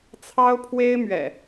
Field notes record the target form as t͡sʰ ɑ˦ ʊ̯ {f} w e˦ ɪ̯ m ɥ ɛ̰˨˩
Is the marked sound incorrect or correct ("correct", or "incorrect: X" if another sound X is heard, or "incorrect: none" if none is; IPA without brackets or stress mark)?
incorrect: pʰ